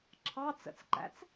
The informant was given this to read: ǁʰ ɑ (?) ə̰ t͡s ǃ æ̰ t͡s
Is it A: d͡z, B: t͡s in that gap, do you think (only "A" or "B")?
B